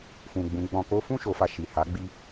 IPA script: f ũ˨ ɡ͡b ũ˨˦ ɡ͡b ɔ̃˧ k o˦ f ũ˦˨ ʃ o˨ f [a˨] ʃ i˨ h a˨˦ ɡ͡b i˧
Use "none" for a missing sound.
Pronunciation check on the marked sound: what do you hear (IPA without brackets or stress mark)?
a˨